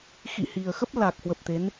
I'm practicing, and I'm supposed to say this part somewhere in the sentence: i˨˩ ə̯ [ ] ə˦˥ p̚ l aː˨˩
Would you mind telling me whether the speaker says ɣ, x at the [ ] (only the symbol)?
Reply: x